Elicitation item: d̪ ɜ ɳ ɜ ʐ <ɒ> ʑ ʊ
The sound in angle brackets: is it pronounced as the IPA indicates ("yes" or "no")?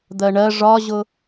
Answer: yes